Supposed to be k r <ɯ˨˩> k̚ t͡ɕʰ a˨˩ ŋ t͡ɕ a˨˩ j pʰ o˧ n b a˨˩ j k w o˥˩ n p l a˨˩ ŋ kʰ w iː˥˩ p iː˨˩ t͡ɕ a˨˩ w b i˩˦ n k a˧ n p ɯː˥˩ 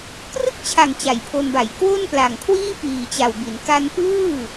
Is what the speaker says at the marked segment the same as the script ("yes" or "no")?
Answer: no